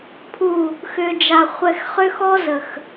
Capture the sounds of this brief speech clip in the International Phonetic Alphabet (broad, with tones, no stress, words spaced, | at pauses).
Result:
pʰu˨ | xʏ˨d͡ʒa˨ χʷɛ˨xχʏ˦xɔ˦zə˨x